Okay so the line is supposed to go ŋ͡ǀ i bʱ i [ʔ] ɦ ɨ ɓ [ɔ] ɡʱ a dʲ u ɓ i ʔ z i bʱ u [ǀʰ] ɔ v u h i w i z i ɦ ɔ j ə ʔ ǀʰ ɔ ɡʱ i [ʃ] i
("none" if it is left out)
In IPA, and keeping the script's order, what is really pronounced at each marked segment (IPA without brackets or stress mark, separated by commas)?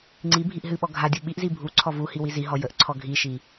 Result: ʔ, ɔ, ǀʰ, ʃ